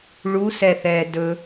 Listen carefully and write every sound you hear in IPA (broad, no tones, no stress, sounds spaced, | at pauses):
ɭ u s ɛ θ ɛː d ɵ